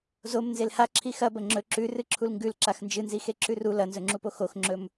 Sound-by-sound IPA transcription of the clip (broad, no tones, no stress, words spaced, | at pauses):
zom nzelha ǁʰixɐ bɐŋ͡ǁɵ ǁʉrɨ ǁʰulŋɡʉl ǁaxnd͡ʒɨnzi xeǁʉru lɐnzɵŋ͡ǁupo xoxŋ͡ǁɵm